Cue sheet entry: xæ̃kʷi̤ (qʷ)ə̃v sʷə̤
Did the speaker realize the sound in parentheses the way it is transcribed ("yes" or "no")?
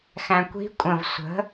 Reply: no